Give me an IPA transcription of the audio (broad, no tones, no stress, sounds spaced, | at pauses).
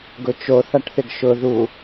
ɡ ʊ t͡ʃ o θ a ʈ θ ɪ ɡ ʃ ʊ ð u